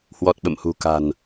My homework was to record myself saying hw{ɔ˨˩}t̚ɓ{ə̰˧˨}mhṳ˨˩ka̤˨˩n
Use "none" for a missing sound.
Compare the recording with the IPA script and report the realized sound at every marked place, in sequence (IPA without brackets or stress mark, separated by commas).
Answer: ɔ˨˩, ə̰˧˨